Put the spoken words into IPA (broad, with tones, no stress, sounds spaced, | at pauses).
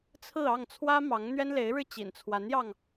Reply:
t͡sʰ ɹ̩˥˧ ɑ˥˩ ŋ t͡sʰ w ä˥ m ɑ˧˥ ŋ n̪ ɥ ɛ˥ n l e˧˥ ɪ̯ ɻ ɻ̩˥˩ t͡ɕ ḭ˨˩ n t͡sʰ w a˧˥ n j ɑ˧ ŋ